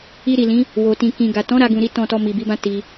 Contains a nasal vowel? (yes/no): yes